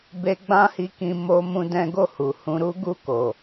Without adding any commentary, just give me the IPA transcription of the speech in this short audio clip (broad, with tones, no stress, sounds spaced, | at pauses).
b e˦ ɡ͡b ã˦ h i˧ k ĩ˧ m o˦ m ũ˦ d ɛ̃˦ ɡ o˦˨ h u˨ h ũ˧ ɾ u˦ ɡ u˦˨ k o˨